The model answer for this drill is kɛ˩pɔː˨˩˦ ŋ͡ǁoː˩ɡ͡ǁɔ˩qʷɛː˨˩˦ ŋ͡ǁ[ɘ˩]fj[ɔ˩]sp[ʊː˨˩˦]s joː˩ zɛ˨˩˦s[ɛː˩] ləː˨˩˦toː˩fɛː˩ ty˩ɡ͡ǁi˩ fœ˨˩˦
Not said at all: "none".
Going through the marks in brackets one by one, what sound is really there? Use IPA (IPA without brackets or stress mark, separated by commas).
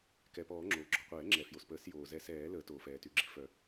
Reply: ɛ˩, o˩, əː˨˩˦, ɛː˨˩˦